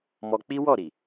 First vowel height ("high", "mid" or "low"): mid